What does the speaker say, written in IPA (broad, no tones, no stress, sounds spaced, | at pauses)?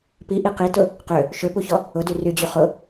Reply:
p i ʔ i q i t ʊ | q ø | ʃ ø p u ç ɔ | ʊ d y r y d͡ʑ y χ ʊ